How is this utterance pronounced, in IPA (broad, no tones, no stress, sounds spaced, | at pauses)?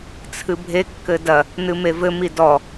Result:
t͡sʰ ɨ bʱ e kː ɘ d ɐ | n ɨ m e v ɘ m i d ɔ